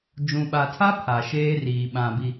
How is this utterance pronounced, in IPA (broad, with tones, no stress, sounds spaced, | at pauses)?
d͡ʒ ũ˨ ɓ a˨ tʰ a˦ pʰ a˨ ʃ eː˦ r iː˨ ɓ ã˨ b i˨